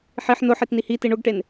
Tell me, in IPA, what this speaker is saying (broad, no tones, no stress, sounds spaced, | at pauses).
ħ i ħ n ʊ ħ i t n i h i t i ɳ ʊ ɡ ʈ e n